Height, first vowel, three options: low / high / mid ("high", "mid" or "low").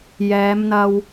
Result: mid